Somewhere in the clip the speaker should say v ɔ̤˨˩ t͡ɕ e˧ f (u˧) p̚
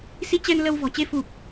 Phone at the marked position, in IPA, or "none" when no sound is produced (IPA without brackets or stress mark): u˨˩